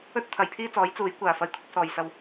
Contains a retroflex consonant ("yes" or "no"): no